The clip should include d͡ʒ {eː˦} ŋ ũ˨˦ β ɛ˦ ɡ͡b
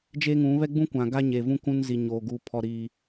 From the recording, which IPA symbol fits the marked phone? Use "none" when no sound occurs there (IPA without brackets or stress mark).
eː˦